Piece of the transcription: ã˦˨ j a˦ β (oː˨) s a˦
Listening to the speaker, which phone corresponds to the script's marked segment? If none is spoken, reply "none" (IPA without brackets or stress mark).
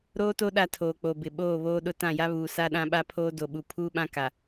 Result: uː˨